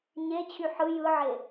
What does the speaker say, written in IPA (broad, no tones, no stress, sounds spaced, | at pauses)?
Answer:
ɲ e t͡ɕʰ y ħ ɯ j ɯ ʕ e